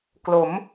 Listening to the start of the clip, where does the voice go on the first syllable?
rising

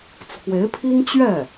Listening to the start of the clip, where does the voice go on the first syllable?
rising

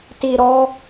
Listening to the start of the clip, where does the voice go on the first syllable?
low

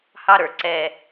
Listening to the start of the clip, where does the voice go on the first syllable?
high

